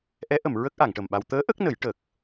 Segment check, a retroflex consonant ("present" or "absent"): present